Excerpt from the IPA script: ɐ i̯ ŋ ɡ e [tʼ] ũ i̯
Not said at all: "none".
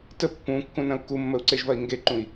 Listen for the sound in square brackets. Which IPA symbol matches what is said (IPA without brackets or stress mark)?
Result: ǃ